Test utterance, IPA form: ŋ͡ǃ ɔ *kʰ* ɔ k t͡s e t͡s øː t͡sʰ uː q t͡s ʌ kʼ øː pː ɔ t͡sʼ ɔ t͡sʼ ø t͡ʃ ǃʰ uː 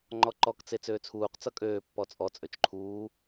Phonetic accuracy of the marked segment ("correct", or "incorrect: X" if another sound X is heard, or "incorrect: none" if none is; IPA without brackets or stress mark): incorrect: ǃ